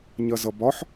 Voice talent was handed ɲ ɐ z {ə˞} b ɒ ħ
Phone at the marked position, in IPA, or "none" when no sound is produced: ʌ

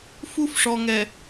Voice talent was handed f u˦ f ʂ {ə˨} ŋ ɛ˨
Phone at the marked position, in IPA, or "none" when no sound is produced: ɔ˨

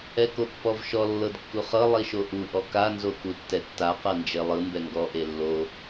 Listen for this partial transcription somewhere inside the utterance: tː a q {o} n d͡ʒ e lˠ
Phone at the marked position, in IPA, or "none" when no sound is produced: ɤ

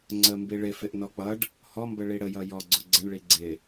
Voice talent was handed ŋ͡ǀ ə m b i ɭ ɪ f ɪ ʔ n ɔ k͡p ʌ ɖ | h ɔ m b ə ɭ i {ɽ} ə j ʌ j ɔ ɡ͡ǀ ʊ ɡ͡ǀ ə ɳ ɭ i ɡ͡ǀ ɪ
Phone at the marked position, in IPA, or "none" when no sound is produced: ɽ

